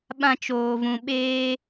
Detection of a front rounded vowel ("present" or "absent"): absent